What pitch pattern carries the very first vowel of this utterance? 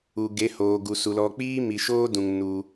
low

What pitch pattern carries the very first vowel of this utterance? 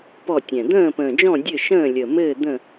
falling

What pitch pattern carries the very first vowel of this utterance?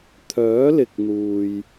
rising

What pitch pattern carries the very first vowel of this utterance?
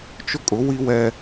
high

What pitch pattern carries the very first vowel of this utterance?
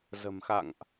low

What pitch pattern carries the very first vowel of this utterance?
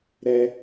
high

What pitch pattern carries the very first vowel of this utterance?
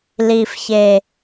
low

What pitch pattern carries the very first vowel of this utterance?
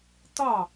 falling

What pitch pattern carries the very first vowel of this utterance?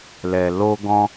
low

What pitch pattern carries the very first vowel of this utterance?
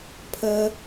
high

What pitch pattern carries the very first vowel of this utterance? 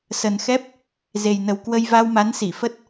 low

